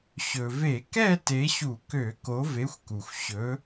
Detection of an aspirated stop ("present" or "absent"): absent